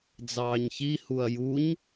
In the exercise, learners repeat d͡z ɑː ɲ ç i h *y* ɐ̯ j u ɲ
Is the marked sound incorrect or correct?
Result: incorrect